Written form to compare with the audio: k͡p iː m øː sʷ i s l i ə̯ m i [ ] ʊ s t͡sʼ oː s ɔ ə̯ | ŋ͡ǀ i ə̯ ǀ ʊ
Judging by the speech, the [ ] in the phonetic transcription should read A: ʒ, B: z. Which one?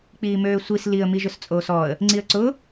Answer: A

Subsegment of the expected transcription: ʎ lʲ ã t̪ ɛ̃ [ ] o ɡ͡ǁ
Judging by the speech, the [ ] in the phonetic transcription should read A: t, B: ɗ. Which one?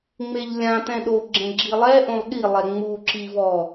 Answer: B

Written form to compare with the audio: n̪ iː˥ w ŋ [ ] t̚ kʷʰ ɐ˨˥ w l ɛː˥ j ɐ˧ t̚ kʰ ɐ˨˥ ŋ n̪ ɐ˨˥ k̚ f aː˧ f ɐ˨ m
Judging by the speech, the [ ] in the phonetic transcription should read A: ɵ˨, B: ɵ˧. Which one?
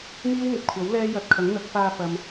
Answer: A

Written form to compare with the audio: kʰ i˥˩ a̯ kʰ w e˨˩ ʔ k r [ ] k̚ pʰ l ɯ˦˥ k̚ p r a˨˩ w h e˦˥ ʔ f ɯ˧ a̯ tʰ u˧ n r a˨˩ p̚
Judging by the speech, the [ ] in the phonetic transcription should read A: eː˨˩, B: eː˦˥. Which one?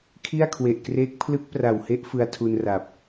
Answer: B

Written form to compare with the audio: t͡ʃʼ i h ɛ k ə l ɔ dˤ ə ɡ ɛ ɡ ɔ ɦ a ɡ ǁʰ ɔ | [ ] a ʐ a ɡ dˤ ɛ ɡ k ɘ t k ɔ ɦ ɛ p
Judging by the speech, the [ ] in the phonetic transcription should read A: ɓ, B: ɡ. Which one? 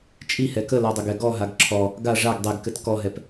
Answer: B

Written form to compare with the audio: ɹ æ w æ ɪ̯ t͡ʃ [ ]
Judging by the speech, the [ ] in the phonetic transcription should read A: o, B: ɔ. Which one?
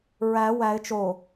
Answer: A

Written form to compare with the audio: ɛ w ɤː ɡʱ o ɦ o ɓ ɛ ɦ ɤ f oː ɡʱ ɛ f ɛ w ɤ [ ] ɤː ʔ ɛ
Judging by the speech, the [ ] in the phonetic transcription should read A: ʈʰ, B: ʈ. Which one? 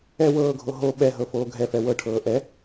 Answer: A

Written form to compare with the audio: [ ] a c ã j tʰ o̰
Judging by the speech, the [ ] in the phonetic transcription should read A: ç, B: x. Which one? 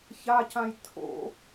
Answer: A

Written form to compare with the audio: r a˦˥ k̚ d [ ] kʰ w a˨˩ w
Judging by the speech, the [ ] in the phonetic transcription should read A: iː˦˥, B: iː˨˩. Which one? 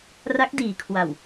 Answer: B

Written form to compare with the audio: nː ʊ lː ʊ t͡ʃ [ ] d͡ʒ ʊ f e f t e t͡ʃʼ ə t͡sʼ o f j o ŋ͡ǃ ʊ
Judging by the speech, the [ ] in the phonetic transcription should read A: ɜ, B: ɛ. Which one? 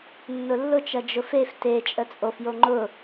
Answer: A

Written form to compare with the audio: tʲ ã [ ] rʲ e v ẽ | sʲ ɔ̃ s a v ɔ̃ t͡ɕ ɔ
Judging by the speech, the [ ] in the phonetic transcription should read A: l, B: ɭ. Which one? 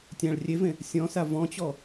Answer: B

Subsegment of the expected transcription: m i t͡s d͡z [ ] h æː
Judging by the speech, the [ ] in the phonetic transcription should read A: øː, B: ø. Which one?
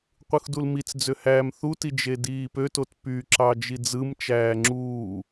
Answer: B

